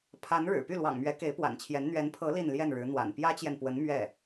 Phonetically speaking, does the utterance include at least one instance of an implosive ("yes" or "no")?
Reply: no